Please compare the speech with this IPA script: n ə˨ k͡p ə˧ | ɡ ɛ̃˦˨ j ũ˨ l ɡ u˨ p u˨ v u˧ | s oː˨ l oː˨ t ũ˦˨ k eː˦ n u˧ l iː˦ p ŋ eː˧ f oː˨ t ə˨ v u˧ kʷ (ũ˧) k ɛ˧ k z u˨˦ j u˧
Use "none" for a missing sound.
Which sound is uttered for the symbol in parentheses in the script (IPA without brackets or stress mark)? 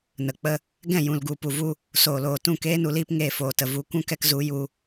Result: ũ˦